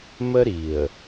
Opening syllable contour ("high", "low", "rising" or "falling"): high